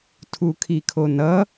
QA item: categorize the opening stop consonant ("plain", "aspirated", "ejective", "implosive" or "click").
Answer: aspirated